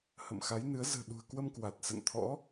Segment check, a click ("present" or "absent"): absent